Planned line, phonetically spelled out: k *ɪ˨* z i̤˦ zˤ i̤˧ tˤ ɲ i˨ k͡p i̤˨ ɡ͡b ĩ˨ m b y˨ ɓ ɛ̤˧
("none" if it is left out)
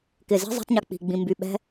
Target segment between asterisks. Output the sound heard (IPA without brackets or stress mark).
ɪ˨